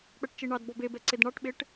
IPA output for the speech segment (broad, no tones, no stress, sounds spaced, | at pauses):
k͡p ɛ ʈ t͡ʃ i ɳ ɑ d b ɔ b e b ɛ ǀ e d ɳ ɑ ʈ ɓ e ʈ